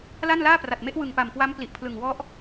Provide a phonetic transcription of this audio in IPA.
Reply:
la˥˩nlaː˥˩pra˨˩t̚me˦˥ʔ wɯ˨˩ŋpa˨˩mkwa˦˥m pli˨˩ʔpʰlɯ˨˩ŋwɔ˦˥ʔ

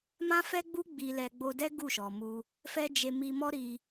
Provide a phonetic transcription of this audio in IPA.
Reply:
mã˦fɛ˦ɡ͡bu˦ ɡ͡bi˧lɛ˧ ɡ͡bo˧dɛ˦ ɡu˦˨ʃɔ˨mu˧ | fɛ˦d͡ʒe˧ mi˧mɔ˦ ɾi˧

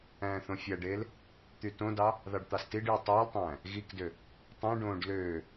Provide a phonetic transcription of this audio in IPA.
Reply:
æ̃ːθõfʲæɖeːl | t̪ytõdɑ | ðɑɖt̪ɑstiɖjɯ tˤeːltˤæ̃ː | ɣikdø | tˤõɖõːɖ løː

